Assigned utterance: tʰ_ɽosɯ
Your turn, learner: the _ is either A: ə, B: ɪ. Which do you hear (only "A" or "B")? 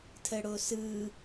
A